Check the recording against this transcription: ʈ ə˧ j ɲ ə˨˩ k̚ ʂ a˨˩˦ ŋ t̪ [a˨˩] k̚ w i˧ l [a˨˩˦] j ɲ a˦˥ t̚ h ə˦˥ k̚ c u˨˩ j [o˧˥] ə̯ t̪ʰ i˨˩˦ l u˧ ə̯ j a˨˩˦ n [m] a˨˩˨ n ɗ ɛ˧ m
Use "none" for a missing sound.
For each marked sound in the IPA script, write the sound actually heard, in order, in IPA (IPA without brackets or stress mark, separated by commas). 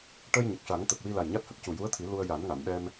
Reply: ə˨˩, a˨˩, u˧˥, ŋ